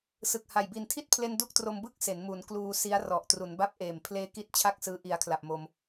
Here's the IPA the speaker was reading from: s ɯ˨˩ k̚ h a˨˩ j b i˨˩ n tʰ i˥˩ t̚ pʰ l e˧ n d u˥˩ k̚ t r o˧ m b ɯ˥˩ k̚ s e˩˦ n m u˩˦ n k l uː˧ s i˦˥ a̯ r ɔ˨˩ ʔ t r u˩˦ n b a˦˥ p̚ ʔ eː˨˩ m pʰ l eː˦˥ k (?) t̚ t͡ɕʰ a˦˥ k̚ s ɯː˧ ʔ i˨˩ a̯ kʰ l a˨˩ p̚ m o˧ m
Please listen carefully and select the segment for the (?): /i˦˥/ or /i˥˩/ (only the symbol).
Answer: i˦˥